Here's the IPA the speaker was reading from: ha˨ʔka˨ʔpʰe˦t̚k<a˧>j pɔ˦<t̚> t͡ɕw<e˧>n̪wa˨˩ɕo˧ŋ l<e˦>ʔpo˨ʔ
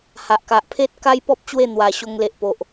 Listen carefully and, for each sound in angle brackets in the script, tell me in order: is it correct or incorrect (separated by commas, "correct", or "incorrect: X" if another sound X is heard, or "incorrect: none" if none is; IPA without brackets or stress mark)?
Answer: incorrect: a˦, incorrect: p̚, incorrect: e˥˧, incorrect: e˨